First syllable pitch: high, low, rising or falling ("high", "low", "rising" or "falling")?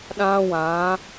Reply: high